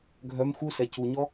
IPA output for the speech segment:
ɡʱ œ m x u s ɛ c u ɲ ɔ

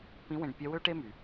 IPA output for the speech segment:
p ĩ˧˥ w ẽ˧ ɖ pʲ œ˧˥ w ø˥ ʈ e˥ m y˩

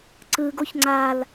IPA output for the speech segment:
ǀ ɯ ɡ o ç ŋ͡ǀ a l

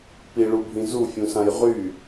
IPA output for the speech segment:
p i ɭ u bʱ ĩ z u fʲ ũ s ã j ʁ y

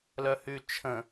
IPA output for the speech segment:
l œ h y t͡ʃʰ ə̃

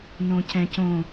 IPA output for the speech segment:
n õ c ɛ̃ c õ

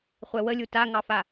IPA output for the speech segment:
χʷ ɛ w ə lʲ u t a ŋ ɑ f a

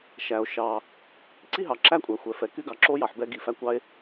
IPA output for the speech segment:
ʃ æ˩ o̯ ʃ ɑ˩ | ǀ i˥ ɦ ɑ˩ ǁ æ˥ kʷʼ æ˩ xʷ ɛ˩ f ɛ˩ k y˥ ɡ ɑ˩ ǁ o˥ j ɑ˩ ħ b ɛ˥ ɡ i˩ f æ˥ kʷ ɑ˥ e̯

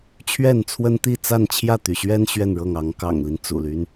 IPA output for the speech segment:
t͡ɕʰ ɥ ɛ˥˨ n t͡sʰ w ə˦ n t̪ i˥˨ t͡s a˥˨ n t͡ɕʰ j ä˥˨ t̪ y˩ ɕ ɥ ɛ˦ n ɕ ɥ ɛ˥˨ n ɻ ɤ˥˨ ŋ ɑ˨˦ ŋ k ɑ̰˨˩ ŋ l i˦ n t͡s ṵ˨˩ l y˦ n

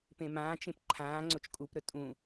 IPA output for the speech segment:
p ẽ m ãː t͡ʃ ẽ p ǃʰ ãː ŋ͡ǀ o t͡ʃ kʼ u p ɾ ɵ tʼ ũ

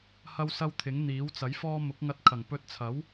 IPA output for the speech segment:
h ɐ˥ w s ɐ˥ w t̪ʰ ɪ˨˥ ŋ n̪ iː˨˥ w t͡s ɐ˨˥ j f ɔː˥ m ʊ˨˥ k̚ ŋ ɐ˧ t̚ kʰ ɐ˨˩ ŋ p ɵ˧ t̚ t͡sʰ ɐ˨˥ w

